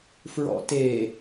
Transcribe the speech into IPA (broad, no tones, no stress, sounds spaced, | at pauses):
f ɹ ɔ̰ t e